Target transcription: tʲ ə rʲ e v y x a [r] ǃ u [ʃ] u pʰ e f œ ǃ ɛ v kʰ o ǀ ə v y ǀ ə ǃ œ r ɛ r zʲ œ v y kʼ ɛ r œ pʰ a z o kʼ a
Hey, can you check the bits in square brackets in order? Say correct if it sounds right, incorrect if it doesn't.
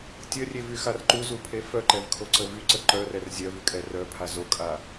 correct, incorrect: z

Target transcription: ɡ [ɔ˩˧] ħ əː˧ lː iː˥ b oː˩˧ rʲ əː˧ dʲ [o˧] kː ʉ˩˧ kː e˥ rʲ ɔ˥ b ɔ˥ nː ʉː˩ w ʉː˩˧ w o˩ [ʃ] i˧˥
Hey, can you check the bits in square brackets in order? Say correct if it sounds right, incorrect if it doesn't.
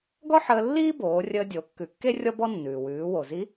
incorrect: ɔ˥, incorrect: o˩˧, incorrect: z

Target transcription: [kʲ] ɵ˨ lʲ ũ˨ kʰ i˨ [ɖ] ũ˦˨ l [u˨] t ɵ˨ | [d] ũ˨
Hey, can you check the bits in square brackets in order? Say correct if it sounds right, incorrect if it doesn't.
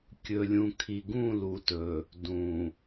correct, incorrect: ɡ, correct, correct

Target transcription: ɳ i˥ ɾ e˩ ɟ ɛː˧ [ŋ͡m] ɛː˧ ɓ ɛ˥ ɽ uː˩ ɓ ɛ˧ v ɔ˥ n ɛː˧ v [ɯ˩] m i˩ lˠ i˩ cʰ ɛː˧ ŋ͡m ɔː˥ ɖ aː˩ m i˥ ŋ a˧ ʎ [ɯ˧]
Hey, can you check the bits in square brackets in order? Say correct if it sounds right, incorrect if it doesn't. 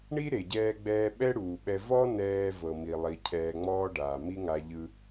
incorrect: ɡ͡b, incorrect: ɤ˩, correct

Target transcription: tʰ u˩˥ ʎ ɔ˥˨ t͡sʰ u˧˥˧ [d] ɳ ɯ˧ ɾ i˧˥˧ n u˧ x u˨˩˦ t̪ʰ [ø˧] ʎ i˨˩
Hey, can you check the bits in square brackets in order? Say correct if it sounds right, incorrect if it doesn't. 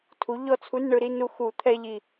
incorrect: n, incorrect: ɛ˧

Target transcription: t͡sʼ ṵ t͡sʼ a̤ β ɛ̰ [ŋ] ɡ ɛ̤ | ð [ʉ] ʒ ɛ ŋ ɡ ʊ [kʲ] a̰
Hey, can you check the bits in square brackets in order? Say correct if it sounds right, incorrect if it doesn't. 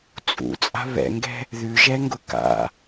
correct, correct, incorrect: k

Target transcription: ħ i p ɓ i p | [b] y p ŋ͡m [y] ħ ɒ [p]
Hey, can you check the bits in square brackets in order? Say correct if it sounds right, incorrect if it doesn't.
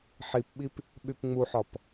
incorrect: ɓ, incorrect: u, correct

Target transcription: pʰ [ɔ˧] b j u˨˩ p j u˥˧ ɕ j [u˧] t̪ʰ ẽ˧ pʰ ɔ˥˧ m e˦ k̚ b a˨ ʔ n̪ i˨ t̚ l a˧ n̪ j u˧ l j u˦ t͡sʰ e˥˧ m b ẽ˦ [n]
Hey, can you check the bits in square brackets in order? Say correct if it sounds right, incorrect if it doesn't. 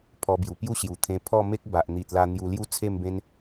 correct, incorrect: u˨˩, correct

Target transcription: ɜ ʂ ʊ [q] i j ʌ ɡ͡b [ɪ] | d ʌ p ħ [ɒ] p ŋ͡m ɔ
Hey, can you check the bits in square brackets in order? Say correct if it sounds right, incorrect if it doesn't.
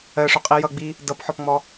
incorrect: qʼ, incorrect: i, correct

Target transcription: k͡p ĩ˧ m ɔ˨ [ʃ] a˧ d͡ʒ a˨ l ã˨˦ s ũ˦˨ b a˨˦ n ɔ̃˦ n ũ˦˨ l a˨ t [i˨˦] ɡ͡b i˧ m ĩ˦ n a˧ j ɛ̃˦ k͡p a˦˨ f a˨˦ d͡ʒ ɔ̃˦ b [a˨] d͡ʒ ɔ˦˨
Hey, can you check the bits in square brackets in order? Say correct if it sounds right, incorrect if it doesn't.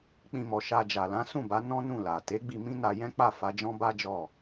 correct, incorrect: e˨˦, incorrect: a˦

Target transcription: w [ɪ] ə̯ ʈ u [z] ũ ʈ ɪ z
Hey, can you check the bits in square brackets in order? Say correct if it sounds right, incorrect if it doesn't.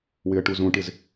correct, correct

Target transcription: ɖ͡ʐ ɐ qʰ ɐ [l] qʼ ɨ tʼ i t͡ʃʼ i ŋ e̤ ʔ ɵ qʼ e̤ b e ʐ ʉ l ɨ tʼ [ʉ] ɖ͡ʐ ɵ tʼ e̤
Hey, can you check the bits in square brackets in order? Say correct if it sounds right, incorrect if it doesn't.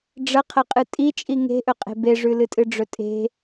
incorrect: none, incorrect: ɨ

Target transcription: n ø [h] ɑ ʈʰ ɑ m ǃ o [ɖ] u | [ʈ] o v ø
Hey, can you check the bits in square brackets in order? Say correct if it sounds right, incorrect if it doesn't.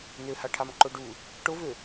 correct, correct, correct

